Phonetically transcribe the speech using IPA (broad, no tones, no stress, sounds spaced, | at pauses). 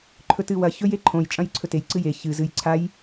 ǃʰ ɵ t ɨ w ɐ ç ɵ j e ǃʰ õ j t͡ʃʼ ɐ̃ j ǀʰ ɵ t e j ǀ ɨ j e ç ɨ z ɨ j ǀʰ a j